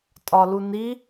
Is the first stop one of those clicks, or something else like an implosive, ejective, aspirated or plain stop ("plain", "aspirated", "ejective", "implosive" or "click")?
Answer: ejective